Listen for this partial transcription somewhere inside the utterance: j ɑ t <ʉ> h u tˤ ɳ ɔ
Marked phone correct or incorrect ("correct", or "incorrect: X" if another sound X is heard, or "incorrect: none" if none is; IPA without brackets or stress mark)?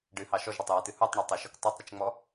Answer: incorrect: ɨ